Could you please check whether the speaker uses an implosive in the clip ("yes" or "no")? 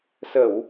no